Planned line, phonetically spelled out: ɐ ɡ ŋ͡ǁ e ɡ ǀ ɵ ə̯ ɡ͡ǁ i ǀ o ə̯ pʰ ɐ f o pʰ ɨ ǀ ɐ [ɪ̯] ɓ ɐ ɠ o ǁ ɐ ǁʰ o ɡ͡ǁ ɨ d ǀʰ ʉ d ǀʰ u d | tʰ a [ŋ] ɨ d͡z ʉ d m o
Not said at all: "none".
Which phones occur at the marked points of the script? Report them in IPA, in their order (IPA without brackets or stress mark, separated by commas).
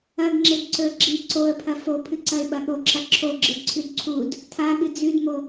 ɪ̯, ɠ